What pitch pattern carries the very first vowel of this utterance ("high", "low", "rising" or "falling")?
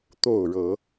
falling